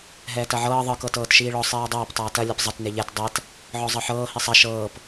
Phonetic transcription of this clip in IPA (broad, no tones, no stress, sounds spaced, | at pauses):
ɦ ɛː t ɐ ʕ ɤː ðˤ ɯ k ɤ t ɤː t ʃ iː ɭ ɔ sˤ iː dˤ ɐː p tˤ ɐː t ɐ lʲ ɐ p zˤ ɐ t n e ʎ ɛ t dˤ ɛ t | ʕ ɔ zˤ ɤ ħ ɤː h i sˤ ɐ ʃ ɤː p